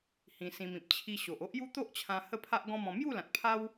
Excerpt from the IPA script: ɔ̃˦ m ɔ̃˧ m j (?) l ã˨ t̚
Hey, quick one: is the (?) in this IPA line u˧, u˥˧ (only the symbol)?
u˥˧